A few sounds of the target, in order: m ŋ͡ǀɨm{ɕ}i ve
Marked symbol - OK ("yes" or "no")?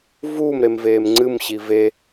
yes